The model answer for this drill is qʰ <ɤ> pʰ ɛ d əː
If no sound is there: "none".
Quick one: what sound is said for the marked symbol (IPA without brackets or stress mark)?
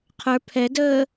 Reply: ə˞